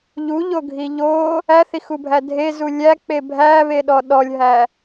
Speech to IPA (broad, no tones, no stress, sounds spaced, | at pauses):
ʎ u ʎ o ɡʱ i ʎ o | æ θ i x u bʱ æ dʱ e z u lʲ æ k͡p e bʱ æ β e ɗ ɔ ɗ ɔ lʲ ɦ æ